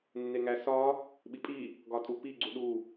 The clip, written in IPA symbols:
nːeŋæsɒ | ɓipʼi | ɡɒtʼupi ɡ͡ǀuɗu

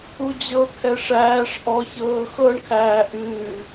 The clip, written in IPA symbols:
ud͡ʑɤkʰɛ ʂæːʂ ʔɔçɤː xɤɳkʰæː ʔɨː

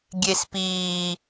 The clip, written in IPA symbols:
ɡʲespiː

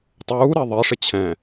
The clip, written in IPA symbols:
tˤuːɾɛ ðˤɛʂɪ t͡ɕʰɛ̃

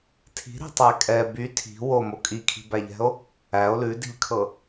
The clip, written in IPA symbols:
tʰi̤ɾi̤tˤæ kʼɛ by tʰi̤ womo kʼikʰi̤bæʎɛ̤o̯ | æo̯ lʉdi̤ʎkʰɤ

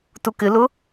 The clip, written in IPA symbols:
tukɪlʊ

